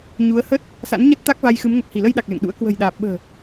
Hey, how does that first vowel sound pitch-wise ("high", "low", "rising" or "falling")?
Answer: rising